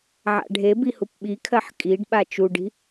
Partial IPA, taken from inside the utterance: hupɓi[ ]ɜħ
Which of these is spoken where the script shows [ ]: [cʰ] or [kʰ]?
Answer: kʰ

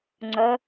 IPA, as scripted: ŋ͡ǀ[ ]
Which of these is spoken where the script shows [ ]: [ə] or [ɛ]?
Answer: ə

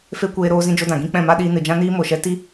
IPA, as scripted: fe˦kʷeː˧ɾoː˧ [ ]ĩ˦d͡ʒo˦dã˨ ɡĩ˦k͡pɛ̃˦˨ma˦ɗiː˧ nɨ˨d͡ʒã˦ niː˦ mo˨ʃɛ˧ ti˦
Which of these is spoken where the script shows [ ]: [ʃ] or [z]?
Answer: z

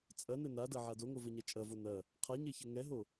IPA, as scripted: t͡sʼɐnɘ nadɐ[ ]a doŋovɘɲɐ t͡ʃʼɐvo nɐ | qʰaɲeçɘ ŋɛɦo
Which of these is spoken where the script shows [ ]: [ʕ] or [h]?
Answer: ʕ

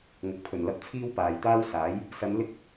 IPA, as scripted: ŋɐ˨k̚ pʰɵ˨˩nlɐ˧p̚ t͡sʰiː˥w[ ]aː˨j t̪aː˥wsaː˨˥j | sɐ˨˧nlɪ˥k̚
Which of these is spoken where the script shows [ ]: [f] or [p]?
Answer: p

